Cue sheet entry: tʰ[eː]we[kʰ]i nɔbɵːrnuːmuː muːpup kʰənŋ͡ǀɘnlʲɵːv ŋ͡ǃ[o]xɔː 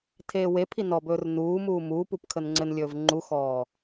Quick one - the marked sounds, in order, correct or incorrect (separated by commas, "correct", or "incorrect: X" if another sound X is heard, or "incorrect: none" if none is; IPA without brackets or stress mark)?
correct, incorrect: pʰ, incorrect: u